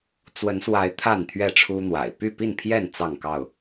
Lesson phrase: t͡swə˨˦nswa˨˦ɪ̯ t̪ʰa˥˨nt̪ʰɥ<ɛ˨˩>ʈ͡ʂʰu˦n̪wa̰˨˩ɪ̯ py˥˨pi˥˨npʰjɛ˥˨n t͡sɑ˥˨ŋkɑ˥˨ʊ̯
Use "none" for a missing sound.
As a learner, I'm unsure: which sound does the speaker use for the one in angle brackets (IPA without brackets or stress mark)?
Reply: ɛ˥˨